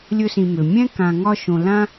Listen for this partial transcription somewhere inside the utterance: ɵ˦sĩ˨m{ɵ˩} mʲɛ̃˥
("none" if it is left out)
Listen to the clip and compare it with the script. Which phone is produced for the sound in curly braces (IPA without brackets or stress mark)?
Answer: ø˩